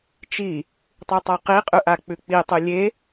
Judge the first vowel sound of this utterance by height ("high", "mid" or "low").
high